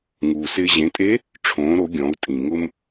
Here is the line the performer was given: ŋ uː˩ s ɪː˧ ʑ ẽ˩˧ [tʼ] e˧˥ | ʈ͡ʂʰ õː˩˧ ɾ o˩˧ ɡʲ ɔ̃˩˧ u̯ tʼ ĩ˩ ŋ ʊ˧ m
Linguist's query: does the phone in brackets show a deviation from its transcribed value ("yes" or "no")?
no